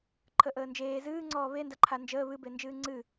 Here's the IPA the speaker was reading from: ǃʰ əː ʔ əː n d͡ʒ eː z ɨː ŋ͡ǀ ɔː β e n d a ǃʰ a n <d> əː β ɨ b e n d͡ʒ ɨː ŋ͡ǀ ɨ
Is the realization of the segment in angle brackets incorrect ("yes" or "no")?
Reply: yes